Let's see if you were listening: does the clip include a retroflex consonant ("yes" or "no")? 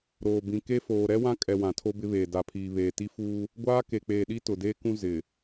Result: no